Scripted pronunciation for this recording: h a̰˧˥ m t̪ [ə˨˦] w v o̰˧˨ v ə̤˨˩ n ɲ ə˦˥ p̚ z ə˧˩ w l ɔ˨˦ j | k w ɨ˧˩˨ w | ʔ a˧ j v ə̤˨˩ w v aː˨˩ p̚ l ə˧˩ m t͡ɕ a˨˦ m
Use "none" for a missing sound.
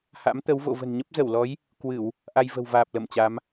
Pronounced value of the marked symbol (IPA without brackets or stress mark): ə˨˦